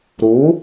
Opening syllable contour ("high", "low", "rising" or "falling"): rising